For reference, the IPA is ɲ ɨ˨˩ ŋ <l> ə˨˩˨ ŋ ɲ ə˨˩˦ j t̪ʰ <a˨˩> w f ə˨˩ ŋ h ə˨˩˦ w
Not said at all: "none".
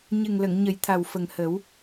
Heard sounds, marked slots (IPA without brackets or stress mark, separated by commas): l, a˨˩